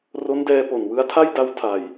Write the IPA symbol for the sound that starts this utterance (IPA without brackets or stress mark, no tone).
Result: r